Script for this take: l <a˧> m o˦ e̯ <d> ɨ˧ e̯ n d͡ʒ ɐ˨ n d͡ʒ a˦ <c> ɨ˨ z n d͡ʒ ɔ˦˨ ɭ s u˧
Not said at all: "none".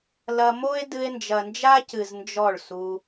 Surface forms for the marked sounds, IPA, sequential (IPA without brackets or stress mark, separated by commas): ɐ˧, d, c